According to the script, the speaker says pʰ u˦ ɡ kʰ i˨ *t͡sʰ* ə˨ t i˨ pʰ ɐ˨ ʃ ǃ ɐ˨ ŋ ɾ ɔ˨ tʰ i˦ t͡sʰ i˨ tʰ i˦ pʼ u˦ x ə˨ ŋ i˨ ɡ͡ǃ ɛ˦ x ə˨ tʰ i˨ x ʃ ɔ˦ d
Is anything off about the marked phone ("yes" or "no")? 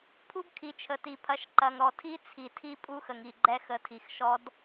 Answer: yes